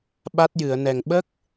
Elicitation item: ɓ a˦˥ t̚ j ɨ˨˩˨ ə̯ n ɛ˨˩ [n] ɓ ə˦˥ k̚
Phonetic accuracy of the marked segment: incorrect: ŋ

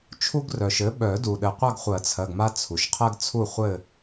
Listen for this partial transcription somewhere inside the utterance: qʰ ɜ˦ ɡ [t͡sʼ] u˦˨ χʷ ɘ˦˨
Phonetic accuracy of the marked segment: incorrect: t͡sʰ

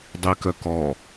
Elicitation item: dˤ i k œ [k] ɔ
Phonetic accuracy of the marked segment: correct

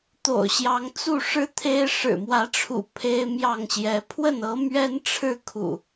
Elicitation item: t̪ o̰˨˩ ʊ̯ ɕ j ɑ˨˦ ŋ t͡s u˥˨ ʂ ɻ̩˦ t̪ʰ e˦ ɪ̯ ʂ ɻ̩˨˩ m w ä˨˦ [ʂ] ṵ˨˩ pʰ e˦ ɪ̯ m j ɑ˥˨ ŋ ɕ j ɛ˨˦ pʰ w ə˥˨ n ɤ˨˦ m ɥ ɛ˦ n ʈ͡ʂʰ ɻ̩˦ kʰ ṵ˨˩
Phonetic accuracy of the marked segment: incorrect: ʈ͡ʂʰ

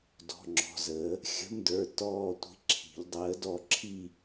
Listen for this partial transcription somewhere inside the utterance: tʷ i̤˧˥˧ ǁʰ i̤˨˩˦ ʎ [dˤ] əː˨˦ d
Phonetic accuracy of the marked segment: correct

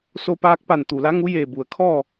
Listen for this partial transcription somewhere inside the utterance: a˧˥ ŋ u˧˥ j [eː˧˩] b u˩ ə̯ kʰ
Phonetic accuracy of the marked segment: correct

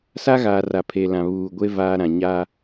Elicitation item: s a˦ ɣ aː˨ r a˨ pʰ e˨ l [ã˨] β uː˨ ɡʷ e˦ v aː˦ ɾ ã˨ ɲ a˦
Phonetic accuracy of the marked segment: correct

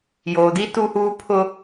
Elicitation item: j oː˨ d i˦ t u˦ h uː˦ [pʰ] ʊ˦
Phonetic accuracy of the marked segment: correct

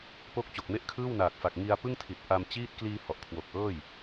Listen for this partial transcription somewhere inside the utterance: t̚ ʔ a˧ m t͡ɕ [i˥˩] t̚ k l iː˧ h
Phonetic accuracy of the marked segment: incorrect: iː˥˩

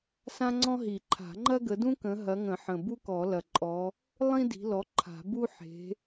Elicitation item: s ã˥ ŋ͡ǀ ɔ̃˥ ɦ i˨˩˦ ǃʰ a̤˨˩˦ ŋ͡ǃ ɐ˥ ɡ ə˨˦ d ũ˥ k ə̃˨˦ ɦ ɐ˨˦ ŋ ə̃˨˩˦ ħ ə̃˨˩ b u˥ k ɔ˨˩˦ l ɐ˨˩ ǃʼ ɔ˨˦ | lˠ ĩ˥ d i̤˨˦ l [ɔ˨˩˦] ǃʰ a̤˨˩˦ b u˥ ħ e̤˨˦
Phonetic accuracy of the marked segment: incorrect: ɔ˨˦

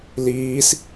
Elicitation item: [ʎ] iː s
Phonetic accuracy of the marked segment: incorrect: l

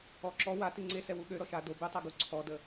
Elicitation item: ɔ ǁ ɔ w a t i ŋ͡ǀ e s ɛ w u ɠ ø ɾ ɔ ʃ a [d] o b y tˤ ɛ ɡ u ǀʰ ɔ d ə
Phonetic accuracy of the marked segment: correct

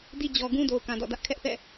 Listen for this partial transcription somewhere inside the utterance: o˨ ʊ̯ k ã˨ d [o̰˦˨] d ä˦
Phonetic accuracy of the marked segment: incorrect: ɔ̰˦˨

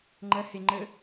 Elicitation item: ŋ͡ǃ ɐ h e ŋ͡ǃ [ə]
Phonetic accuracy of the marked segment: correct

